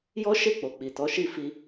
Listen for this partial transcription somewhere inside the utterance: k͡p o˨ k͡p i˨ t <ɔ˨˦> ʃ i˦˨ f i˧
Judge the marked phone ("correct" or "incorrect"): correct